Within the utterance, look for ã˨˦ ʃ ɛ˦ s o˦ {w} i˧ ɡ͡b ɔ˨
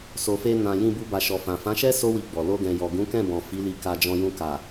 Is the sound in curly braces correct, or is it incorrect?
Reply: correct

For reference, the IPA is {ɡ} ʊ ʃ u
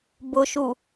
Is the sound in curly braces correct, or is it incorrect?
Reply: incorrect: b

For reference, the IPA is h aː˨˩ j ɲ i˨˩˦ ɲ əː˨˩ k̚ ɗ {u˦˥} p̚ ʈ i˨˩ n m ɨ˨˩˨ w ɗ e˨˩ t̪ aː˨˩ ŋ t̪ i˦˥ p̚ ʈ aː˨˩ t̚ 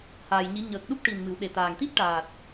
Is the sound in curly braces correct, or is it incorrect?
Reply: correct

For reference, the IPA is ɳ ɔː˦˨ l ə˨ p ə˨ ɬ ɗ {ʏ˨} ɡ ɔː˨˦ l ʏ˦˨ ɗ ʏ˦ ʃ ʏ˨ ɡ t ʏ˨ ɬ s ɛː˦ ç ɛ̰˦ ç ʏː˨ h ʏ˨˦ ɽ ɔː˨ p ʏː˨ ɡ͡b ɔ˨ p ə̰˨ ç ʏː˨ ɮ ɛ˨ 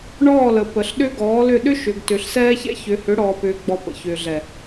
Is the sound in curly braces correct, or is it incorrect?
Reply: incorrect: ʏ˦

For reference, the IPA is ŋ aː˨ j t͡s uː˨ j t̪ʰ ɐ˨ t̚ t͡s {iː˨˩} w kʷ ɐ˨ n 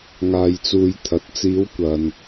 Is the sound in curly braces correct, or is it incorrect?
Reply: incorrect: iː˨˧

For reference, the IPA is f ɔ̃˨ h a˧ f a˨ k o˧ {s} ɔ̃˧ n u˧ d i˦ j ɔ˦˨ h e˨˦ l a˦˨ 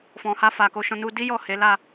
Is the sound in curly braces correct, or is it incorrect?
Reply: incorrect: ʃ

